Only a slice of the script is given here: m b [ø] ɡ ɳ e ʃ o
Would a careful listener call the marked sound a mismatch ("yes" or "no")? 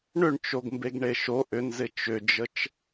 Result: yes